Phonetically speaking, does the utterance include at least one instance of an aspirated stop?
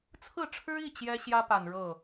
yes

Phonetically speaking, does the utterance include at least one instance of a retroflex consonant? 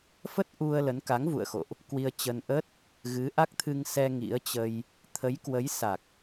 no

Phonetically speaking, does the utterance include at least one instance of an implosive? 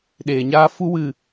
yes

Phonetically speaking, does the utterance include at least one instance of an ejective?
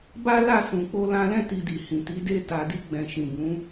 no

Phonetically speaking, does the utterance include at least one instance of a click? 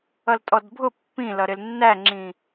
yes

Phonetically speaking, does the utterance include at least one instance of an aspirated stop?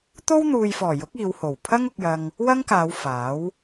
yes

